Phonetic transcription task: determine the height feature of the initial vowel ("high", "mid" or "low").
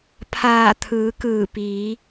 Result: low